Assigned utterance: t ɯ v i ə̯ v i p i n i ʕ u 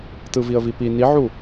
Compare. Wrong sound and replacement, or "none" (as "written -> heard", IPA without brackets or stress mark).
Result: none